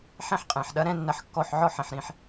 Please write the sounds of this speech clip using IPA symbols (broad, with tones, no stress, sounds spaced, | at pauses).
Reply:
ħ ɛ̃˦ ħ qʼ ɛ̃˨ ħ ɗ ɐ˦ ɾ ɛ̃˦ nː ɐ˧ ħ kː ɔ˧ ħ ʕ ɔ˦˨ ħ ɐ̃˨ ħ ɾ ĩ˦ ħ